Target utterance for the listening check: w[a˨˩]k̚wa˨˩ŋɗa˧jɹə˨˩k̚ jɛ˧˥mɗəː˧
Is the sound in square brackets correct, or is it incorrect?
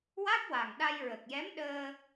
incorrect